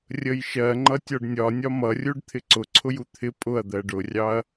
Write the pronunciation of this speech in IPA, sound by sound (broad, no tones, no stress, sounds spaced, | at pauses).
rʲ ə j ʃ ɜ ŋ͡ǃ ʌ tʲ ɔ ɖ nʲ ɒ nʲ ɒ m ʌ rʲ u ɖ t̪ʰ ɪ ǀ ʊ ǀʰ ʊ j u t̪ʰ ɪ pʼ ʊ ɐ̯ d̪ ɜ ɖ ʊ rʲ ɑ ɐ̯